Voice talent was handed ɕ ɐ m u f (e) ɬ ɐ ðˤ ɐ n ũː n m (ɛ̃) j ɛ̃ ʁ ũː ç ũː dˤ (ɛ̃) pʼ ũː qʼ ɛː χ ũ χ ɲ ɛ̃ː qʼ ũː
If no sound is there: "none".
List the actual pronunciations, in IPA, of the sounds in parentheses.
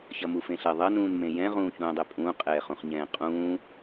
ẽ, ẽ, ɛ

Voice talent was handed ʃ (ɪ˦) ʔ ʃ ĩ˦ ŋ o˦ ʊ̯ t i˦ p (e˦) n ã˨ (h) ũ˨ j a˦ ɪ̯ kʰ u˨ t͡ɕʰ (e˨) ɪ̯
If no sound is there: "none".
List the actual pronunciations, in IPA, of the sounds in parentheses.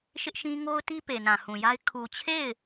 ɪ˦, e˨, h, e˦˨

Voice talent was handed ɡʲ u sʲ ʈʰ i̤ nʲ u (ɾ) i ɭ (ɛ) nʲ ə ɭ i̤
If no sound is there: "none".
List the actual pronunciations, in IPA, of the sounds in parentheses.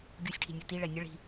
t, ɛ

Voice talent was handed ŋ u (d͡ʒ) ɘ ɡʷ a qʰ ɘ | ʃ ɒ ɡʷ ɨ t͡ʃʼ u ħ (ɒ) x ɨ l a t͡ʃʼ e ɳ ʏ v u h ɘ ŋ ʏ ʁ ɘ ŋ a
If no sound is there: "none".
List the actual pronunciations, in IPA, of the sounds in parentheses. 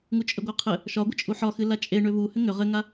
t͡ʃʼ, ɒ

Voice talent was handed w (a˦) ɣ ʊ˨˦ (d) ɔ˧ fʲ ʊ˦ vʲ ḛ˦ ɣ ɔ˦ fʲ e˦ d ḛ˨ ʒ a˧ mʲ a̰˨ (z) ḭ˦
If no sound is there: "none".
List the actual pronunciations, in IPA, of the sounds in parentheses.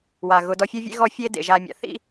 a˨, d, θ

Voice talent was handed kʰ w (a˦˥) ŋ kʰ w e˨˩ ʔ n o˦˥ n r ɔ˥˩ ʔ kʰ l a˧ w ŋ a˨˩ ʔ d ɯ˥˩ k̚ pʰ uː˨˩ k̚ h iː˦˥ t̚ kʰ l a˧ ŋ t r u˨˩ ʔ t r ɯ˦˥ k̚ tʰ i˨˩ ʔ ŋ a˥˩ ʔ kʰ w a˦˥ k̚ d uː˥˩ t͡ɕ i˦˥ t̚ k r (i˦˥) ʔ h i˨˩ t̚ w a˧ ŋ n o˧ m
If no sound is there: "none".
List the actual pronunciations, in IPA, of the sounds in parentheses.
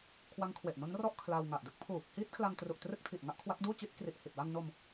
a˦˥, i˨˩

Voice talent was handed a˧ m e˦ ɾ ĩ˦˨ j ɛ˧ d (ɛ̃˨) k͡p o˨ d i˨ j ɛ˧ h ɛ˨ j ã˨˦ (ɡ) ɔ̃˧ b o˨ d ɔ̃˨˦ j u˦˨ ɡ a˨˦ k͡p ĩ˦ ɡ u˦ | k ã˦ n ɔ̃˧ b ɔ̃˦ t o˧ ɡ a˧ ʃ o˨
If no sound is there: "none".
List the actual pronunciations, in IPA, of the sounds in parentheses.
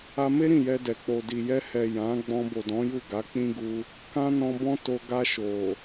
ɛ˨, ɡ͡b

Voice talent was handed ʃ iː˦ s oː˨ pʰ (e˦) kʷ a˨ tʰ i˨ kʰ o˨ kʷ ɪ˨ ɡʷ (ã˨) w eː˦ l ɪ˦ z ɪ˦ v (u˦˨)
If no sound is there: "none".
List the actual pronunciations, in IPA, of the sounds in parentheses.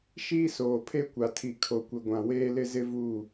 e˦, ã˨, u˦˨

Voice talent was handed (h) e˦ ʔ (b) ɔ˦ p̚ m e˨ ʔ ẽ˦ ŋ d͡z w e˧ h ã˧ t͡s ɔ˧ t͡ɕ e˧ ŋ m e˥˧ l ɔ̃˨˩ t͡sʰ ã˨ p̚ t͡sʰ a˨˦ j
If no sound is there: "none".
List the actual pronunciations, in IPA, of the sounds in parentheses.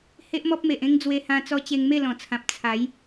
h, m

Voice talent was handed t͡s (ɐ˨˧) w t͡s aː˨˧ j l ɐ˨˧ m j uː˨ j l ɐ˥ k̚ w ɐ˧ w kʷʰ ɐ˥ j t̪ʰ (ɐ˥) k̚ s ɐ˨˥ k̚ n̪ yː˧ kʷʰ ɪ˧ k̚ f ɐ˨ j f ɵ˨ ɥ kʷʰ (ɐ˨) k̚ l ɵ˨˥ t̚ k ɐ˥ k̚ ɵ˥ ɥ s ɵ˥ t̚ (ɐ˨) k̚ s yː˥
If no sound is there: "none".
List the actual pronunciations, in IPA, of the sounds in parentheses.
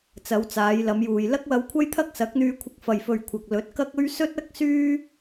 ɐ˨˧, ɐ˥, ɐ˨, ɐ˥

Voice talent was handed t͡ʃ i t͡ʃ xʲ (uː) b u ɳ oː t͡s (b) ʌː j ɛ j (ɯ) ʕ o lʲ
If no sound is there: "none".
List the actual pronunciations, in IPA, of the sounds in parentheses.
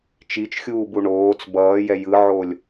uː, b, ɯ

